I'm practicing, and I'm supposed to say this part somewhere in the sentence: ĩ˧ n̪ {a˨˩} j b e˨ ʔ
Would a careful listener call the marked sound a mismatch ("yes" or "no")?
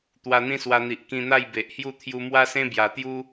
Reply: yes